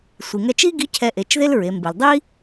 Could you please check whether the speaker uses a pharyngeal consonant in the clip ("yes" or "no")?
no